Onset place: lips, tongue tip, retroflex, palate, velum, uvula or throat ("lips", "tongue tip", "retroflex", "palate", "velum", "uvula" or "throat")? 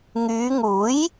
velum